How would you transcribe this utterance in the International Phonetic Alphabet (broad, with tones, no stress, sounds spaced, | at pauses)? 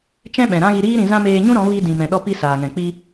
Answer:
t͡ʃ ɛ̃˦ ɓ ɛ̃˨ ɾ ã˦ ɣ i˧ ɾ iː˦ ɾ ĩ˧ z ã˦ m eː˧ ɲ ũ˦ ɾ ɔ̃˨˦ v i˧ d ĩ˨ m ɛ̃˨ ɗ ɔ˧ p i˧ s aː˨ ŋ ɛ̃˨ k͡p i˧